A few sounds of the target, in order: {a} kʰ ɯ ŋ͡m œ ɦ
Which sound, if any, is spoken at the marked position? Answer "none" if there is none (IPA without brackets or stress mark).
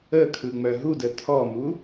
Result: ə